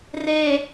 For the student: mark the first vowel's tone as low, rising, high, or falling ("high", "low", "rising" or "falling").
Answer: low